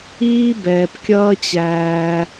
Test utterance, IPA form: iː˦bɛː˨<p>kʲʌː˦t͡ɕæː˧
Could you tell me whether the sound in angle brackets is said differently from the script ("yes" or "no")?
no